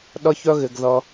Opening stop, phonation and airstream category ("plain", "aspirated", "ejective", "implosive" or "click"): implosive